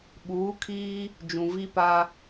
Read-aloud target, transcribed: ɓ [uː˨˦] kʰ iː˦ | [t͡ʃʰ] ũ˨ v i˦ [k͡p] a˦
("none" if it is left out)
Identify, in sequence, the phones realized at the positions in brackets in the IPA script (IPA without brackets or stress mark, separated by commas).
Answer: uː˨˦, d͡ʒ, p